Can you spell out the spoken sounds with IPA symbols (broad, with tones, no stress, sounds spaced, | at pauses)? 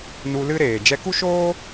n u˧ l ɨ˦ ɾ eː˨ d͡ʒ ɛ˧ k u˦ ʃ oː˦